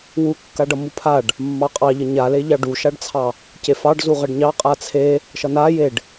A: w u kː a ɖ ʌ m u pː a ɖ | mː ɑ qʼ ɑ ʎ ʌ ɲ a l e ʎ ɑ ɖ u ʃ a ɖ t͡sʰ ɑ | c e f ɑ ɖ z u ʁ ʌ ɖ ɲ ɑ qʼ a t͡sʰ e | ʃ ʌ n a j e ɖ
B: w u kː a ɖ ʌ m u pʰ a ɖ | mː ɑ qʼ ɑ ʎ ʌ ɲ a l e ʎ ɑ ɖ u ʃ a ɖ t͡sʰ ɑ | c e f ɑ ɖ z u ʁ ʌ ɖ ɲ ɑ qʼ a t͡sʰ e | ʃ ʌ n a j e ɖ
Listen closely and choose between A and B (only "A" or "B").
B